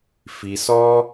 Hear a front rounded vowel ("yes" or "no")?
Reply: no